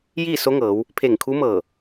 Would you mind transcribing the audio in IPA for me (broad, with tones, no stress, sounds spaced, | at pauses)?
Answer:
j iː˥˨ s o˧˥ ŋ ɤː˩˧ w | pʰ e˧˩ ŋ kʰ u˧˥ m ɤː˧˩